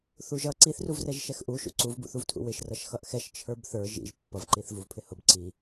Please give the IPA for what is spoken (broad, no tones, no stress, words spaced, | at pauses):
θuʒʌ ǀiθruvrɛʒ ʃɛxʔuʃṵ ǀuvbṵθuvtʰṵ wɪʃrʌʃ xʌʔxɛʃ t͡ʃʰə˞bθə˞ ʒḭʒ pːʌv ǃiθvuvpʰɪhʊb ǀi